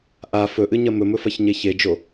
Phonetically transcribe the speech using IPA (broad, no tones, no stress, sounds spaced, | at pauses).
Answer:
ʔ a f ɵ ʔ ɨ ɲ ɐ m ɵ m ɵ f ɐ ç ɲ e ç e d͡ʒ o